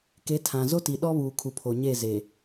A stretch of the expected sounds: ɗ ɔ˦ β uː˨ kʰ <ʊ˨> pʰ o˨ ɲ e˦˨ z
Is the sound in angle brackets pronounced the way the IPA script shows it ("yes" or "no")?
no